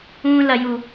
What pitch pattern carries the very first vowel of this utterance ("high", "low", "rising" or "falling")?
high